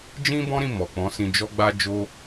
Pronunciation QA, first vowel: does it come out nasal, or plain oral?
nasal